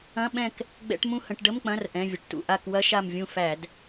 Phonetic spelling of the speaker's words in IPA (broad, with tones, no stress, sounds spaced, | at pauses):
ɐ̃˧˥˧ ɓ ɛ̃˦˨ k | ɡ͡b ɛ̰˧˥˧ ʈ m ũ˦˨ h ə̃˧˩˧ ʈ ɖ ə˧˥˧ m k͡p ɐ̃˧˥˧ r ʔ ɛ̃˩˧˩ vʲ ə˩ ʈ t ṵ˩ ʔ a˦˨ k w ɐ˦˥ ʃ a˦˨ m vʲ ũ˦˨ f æ˧˩˧ d